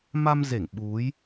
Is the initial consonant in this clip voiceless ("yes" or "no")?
no